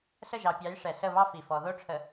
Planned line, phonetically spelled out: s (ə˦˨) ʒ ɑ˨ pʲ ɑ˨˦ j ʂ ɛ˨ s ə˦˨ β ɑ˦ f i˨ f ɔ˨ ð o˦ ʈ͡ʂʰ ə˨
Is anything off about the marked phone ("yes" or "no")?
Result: no